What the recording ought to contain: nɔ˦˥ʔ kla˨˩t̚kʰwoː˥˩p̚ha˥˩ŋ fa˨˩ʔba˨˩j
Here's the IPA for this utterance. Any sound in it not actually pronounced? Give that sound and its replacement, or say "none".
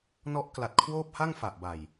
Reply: none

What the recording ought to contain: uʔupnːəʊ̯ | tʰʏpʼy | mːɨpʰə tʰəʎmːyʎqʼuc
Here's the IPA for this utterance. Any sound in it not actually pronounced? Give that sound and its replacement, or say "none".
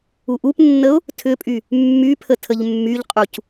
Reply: ɨ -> y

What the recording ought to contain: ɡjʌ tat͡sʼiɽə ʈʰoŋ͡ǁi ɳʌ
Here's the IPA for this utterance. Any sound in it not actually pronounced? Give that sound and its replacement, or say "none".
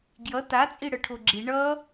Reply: ŋ͡ǁ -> ɡ͡ǁ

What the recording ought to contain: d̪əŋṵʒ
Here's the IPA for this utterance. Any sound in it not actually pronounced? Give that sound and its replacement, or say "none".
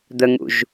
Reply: none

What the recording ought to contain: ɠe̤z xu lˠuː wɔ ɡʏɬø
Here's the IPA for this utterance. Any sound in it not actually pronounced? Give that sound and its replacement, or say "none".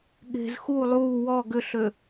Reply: none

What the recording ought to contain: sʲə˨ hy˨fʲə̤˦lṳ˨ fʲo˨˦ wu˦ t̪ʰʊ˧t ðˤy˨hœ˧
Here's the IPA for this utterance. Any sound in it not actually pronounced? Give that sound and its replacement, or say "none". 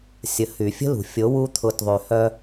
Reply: none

